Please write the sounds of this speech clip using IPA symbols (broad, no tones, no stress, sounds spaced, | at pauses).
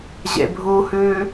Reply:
ʑ ḛ bʱ u h ʉː